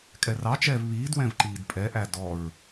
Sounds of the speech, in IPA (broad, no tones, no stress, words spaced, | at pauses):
kʼɛrɑt͡ʃɛːv βiːdwɛ̃v ǃiːdpʼɛʔæ dɔɹ